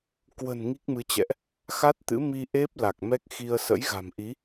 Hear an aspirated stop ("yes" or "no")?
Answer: no